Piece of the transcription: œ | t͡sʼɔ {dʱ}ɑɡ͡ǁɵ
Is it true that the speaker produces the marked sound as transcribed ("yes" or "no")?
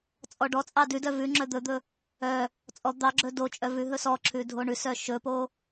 no